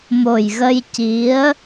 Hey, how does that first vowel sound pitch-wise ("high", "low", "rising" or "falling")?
low